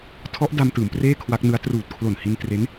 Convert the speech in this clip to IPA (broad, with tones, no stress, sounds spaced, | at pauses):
tʰ ɔ˦˥ ʔ d a˧ m t ɯː˩˦ m p r eː˥˩ kʰ w a˦˥ k̚ n ɯ˦˥ a̯ t r uː˨˩ t̚ kʰ l o˨˩ n h i˧ n t r e˦˥ n